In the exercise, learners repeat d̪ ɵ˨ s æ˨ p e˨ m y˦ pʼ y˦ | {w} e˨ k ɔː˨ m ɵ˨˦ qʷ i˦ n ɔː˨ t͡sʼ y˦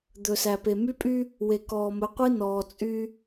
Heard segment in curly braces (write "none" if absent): w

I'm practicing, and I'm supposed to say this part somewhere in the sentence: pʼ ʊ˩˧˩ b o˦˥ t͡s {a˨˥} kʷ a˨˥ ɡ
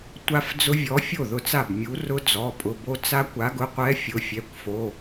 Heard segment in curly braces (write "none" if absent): a˦˥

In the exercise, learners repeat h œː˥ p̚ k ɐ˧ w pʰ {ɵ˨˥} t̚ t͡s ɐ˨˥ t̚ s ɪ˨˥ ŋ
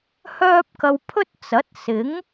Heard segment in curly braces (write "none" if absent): ɵ˥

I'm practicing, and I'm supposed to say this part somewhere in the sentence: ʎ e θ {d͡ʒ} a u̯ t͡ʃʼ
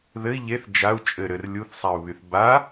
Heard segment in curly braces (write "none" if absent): d͡ʒ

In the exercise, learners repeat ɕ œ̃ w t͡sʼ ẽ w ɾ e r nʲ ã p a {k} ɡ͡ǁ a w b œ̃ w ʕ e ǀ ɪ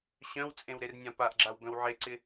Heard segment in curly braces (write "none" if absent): ʔ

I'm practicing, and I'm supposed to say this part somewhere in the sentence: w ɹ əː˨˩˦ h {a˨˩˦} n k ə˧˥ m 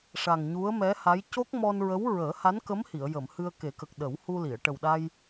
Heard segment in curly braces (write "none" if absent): a˧˥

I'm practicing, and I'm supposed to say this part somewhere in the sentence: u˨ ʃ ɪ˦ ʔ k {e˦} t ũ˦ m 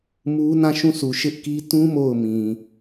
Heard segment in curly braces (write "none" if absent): i˦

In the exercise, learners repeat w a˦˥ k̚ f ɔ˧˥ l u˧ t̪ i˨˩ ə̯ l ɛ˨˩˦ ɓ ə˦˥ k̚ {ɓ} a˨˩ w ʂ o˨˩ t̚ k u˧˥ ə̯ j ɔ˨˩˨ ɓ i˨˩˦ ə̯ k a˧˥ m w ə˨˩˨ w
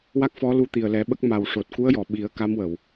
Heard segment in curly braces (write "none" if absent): m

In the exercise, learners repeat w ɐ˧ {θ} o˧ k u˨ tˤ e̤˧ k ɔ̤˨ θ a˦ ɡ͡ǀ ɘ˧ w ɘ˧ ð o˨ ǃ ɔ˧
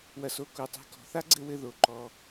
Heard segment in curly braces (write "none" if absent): s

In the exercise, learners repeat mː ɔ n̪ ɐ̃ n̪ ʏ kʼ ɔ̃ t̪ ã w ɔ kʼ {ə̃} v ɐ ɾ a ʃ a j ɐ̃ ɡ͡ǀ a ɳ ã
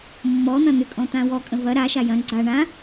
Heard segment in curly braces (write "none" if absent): ə̃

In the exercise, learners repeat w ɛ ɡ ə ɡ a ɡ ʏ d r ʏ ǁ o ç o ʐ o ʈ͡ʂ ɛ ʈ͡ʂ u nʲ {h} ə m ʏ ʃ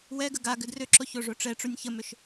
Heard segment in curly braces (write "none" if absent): ç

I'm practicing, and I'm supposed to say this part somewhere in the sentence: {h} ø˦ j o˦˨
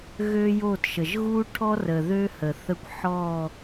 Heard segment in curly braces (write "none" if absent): ɣ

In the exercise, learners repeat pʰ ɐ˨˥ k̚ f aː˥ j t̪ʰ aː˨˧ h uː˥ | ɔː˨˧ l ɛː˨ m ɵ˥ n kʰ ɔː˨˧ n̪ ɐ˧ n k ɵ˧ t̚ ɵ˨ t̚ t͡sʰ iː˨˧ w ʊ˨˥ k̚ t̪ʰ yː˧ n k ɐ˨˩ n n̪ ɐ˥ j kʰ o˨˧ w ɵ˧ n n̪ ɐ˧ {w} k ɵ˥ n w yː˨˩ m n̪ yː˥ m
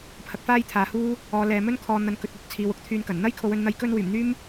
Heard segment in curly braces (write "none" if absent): j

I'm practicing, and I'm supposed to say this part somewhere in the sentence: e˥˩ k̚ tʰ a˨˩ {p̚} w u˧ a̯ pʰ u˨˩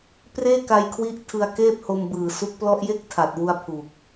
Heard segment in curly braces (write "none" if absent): t̚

